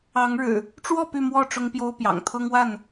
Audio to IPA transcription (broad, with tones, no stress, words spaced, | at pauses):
ɑ˨˦ŋɻɻ̩˨˩ | ʈ͡ʂwɔ˥˨ py˥˨mwɔ˥˨ ʈ͡ʂʊ˦ŋpjo˦ʊ̯pjɑ̰˨˩ŋ t̪ʰɤ˦ŋwa˥˨n